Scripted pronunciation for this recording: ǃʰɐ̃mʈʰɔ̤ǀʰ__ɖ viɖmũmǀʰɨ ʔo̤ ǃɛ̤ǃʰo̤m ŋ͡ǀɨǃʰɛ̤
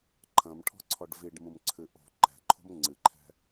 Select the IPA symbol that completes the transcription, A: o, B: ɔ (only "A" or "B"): B